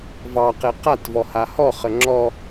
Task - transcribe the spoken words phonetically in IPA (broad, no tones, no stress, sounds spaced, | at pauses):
v ɑ q e q a t v ɔ h a h ɔ χ ə ŋ͡ǁ ɔ